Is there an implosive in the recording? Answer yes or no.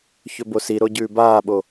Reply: yes